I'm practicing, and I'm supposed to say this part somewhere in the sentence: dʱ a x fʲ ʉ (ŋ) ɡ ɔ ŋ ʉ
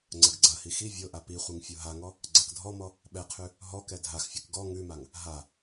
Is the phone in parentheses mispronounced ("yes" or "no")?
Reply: yes